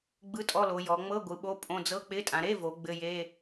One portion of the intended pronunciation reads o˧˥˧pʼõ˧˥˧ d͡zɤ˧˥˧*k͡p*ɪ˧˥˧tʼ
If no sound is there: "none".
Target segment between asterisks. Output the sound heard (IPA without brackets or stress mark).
k͡p